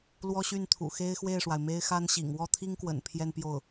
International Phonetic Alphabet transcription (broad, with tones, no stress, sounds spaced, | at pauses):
l w ɔ˥ ɕ y˥˩ n t̪ʰ ṵ˨˩ x e˥ ɪ̯ x w e˥˩ ɪ̯ ʂ w a˩ ɪ̯ m e˥ ɪ̯ x a˥ n ɕ ḭ˨˩ ŋ w ɔ˥˩ t̪ʰ i˥ ŋ k w ə̰˨˩ n pʰ j ɛ˥˧ n p j o˥˩ ʊ̯